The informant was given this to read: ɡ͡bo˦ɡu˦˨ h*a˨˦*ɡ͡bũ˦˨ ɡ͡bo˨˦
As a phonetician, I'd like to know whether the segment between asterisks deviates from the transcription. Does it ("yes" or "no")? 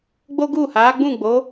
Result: no